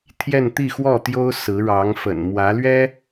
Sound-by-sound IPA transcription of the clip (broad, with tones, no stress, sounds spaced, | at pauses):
t̪ʰ j ɛ˥˧ n t̪ i˥˧ x w ɔ˥˩ t̪ j o˥ ʊ̯ s ɹ̩˧˥ ɻ ɑ˧˥ ŋ f ə̰˨˩ n m w ä˧˥ l ɥ ɛ˥